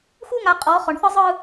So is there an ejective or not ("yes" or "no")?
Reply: yes